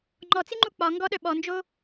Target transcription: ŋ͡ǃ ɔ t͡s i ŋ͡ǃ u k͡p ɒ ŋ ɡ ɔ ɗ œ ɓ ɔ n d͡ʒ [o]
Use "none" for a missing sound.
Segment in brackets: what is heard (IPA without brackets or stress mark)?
o